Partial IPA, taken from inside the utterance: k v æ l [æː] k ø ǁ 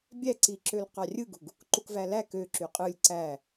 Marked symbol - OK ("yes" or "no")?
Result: no